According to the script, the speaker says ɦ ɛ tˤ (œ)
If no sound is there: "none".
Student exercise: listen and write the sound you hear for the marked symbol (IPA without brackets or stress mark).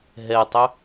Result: œ